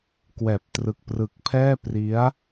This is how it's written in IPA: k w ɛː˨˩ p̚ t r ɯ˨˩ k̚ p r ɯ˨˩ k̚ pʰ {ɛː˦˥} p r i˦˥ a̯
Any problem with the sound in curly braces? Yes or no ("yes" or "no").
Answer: yes